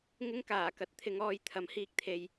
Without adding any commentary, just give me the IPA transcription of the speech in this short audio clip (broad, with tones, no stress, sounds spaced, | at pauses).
ŋ ɪ˥ ŋ k aː˨˩ k ɐ˨˥ t̚ t̪ʰ ɪ˨˧ ŋ ɔː˧ j t̪ʰ ɐ˨˥ m h iː˧ k̚ t̪ʰ e˨ j